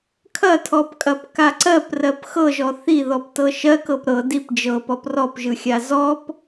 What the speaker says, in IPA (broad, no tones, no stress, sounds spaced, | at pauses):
kʰ ɐ tʰ ɔ p kʼ ɐ p k a ǀ ɜ p r ɜ p x ɤ ʒ ɔ θ i ð ɔ p t ɤ ʃ ɜ k ɤ p ɾ ɤ d i p d͡ʒ ɤ p ɔ p r ɔ p ʒ ɯ xʲ a z ɔ p